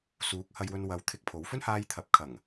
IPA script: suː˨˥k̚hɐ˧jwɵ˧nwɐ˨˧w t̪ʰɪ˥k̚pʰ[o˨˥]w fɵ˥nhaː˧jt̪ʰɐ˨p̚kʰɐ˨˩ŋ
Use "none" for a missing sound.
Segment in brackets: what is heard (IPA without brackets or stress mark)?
o˨˥